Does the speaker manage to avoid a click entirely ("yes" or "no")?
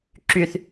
no